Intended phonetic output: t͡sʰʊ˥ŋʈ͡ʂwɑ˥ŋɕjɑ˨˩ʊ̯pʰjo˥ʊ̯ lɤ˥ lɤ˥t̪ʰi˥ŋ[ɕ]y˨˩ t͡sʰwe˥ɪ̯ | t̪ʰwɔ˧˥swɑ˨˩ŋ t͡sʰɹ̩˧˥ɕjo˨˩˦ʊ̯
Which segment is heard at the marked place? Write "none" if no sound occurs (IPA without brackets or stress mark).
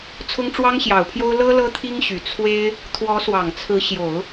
ɕ